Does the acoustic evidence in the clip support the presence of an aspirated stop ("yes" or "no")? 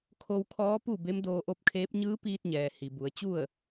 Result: yes